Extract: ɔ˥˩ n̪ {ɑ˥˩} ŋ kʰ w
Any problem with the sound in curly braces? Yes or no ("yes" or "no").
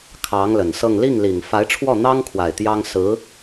yes